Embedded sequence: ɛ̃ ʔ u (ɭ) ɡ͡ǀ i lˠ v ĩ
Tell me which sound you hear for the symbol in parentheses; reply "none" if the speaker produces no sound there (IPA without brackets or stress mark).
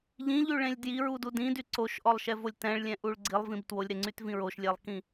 ɭ